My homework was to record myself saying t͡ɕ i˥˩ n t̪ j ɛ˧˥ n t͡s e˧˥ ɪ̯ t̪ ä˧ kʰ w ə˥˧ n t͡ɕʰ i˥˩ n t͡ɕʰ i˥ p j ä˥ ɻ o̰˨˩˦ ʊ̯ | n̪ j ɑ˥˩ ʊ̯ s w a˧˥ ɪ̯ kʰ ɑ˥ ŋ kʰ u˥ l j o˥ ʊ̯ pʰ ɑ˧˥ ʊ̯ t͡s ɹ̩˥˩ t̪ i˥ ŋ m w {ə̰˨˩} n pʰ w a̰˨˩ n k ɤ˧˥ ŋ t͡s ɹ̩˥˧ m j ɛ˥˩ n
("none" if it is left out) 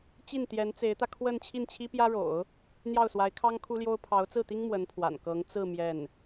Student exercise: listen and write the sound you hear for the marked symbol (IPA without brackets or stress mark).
ə˧˥